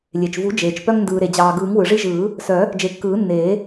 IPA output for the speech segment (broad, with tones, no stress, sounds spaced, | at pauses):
lʲ e˩ t͡ʃ v u˨˩˦ d͡ʒ eː˩ t͡ʃ p œ˦ ŋ n d ɯː˩ ɾ e˩ d͡ʑ ɑː˩ ɡ ɯː˨˩˦ ŋ w ɯ˩ ʐ i˦ ʒ ɯː˨˩˦ | s œ˨˩˦ | d͡ʒ e˨˩˦ kː ɯː˨˩˦ nː eː˨˩˦